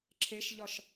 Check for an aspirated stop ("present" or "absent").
present